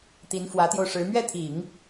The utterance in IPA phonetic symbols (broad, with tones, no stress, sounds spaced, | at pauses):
t̪ i˧˥ n f w ä˧˥ t̪ j o˧ ʊ̯ ʂ ɻ̩˧˥ m ɥ ɛ˥˩ t̪ʰ i˨˩˦ ŋ